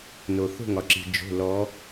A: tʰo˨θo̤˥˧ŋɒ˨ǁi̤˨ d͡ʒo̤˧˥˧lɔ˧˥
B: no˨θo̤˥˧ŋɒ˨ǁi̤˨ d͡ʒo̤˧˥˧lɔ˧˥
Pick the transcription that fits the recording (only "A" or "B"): B